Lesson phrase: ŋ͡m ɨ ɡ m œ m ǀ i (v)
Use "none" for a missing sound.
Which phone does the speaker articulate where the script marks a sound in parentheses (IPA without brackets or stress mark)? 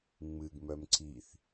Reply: θ